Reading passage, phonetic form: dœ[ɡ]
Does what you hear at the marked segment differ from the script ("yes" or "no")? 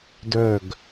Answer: no